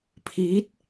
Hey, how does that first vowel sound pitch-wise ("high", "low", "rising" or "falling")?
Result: rising